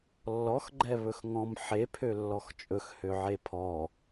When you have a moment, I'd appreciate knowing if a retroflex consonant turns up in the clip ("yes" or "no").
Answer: no